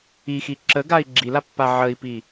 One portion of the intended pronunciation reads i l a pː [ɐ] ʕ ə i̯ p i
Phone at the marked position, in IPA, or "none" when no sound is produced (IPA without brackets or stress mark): a